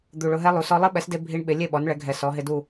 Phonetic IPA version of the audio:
d̪u˨˩ɭʊ˧ɦɛ˦˥lˠu˩˥ sɔ˦˥ lˠɪ˦˥ɓɛ˩˥sde˧ bʱi˦˥ɳɓɪ˩˥ lʲe˥˨ɓɔ˩˥nɭɛ˩˥ɡʱɛ˨˩ sɔ˩˥ɦɪ˦˥du˥˨

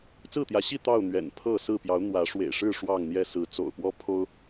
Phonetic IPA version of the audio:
t͡sɹ̩˥˨t̪jä˨˦ɕi˥˨ t̪ɑ˥˨ʊ̯ n̪ɥɛ̰˨˩npʰɤ˥˨sɹ̩˥˨ pjɑ˨˦ʊ̯n̪wä˨˦ʂwḛ˨˩ɪ̯ʂɻ̩˥˨ ʂwɑ˥˨ŋn̪jɛ˥˨ sɹ̩˨˦t͡so̰˨˩ʊ̯pwɔ˦ pʰo˦ʊ̯

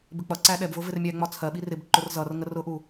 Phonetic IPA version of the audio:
bɪk͡pʌǀæ ɗɛbvʊ vɪrmʲæŋ͡mɒ t͡sʰɜɓir ɪbǃʊr zʌrŋə rʊʔu

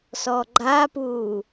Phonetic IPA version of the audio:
sɔɡ͡ǃapuː

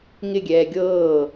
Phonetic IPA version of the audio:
ŋɪɡʲɛː ɡʲɤː

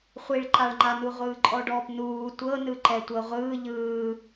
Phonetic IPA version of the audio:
χʷiɭǃaɭŋ͡ǃanu ʁʷɯːǃʼɔɖɔːpnuː tʷɤnɯǃɛ tʷɤʁʷɯː ʎɯː

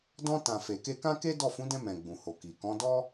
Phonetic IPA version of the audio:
dɔ̃˧tã˨ fe˨ke˧kã˦ke˦ dɔ˦˨ fũ˨˦dɛ̃˧ mɛ̃˨ ɡ͡bũ˨ho˨ki˨ kɔ̃˨˦dɔ˦

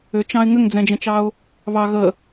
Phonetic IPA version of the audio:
ʏt͡ʃɑ̃ɪ̯ ŋʏŋd͡zɛ̃d͡ʒə̃t͡ʃɑʊ̯ | βɑ ɣə

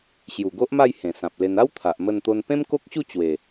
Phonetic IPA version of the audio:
ɕju˨˩ɡo˦ʔma˥˧j hẽ˨˩sã˨p̚le˧n a˦w t̪ʰa˨ʔmə˥˧nt̪o˦n pẽ˦mko˦k̚ɕu˥˧ t͡ɕwe˨˩

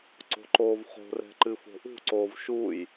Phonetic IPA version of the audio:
ǀo̤ǃoːvχo̤rɛ̤ ǃɨfo̤ʔṳǀoːv ʃuːj

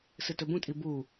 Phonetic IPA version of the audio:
sɨtɵbũtʼi bu

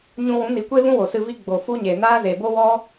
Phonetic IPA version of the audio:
ɲũ˧wũ˨˦ ni˨kʷe˦ vũ˦wo˨ sɨ˧vi˦ ɡ͡bo˨fu˦ɲe˨ naː˦ze˨ bo˦wɔ˦

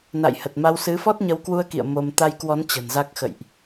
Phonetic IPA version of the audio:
na̰˧˨jhə˨˩t̚ma˧w sɨ˨˦ fɔ˦˥t̚ɲə˨˦wkwu˧ə̯kḭ˧˨ə̯ mo˧m t̪a˧jkwɔ˨˦n t͡ɕə̤˨˩nza˦˥k̚ xə̰˧˨jʔ

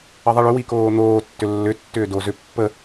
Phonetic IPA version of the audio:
əðˤiɭʏ wikoːn̪oː tːʏlːʏ tːʏːdo zʏ pːə

